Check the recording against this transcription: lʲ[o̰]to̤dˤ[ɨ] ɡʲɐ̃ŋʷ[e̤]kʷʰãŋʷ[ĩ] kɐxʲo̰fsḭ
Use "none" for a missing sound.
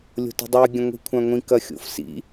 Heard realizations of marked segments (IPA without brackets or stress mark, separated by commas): o̤, ɨ, i̤, ĩ